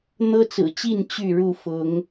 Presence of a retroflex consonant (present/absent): present